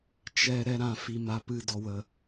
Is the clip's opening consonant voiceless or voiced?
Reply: voiceless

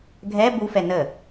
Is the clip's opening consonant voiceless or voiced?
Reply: voiced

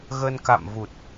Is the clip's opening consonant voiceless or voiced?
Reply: voiced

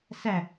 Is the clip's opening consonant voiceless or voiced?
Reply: voiceless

